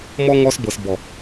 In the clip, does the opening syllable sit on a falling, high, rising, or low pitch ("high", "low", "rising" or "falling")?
high